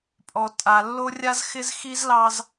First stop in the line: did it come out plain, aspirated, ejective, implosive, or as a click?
ejective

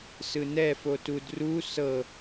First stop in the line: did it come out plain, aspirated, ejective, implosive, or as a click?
plain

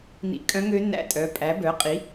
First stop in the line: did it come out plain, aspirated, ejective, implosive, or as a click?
ejective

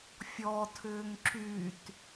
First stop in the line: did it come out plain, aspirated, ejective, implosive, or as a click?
aspirated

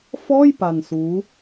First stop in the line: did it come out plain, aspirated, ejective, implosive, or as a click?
plain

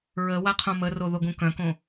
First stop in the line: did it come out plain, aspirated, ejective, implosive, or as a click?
aspirated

